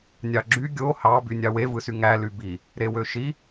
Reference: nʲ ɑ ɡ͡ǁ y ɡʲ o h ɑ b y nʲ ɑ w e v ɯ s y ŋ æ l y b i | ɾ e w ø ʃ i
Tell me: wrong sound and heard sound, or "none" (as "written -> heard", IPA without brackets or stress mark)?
none